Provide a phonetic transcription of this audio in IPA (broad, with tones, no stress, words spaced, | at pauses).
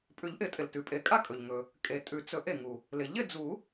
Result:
pʼʉ˨˩˦ʎʔɪ˨˩˦tʼɪ˩ltʉ˩ pʼe˨˩˦kʼa˥˨kʼɵ˩ʎ ŋɵ˩ | kʼe˨˩˦tʼʉ˨˩˦ t͡sɵ˨˩˦ʔ e˩ŋu˩ | lɪ˩ ʎɪ˥˨ d͡zu˨˩˦